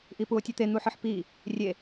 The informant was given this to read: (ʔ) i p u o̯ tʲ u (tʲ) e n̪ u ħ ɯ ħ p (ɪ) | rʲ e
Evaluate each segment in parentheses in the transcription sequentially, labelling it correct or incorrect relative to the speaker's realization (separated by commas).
correct, incorrect, incorrect